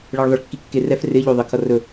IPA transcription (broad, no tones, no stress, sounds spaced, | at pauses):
ɭ ɛ ɭ ðˤ ə ɭ kː i kː e r ɛ f r ɪ ʎ o ðˤ ɪ kʰ ʌ r ɵ